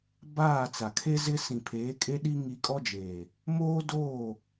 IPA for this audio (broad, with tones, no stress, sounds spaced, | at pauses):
b aː˦˨ t͡s a˨ kʰ e˦ z ɪ˦ s ĩ˨ pʰ eː˨˦ kʼ e˦ ɗ i˦ ŋ i˦ kʼ ɔ˦ d͡ʒ eː˨ | m oː˦ d oː˦˨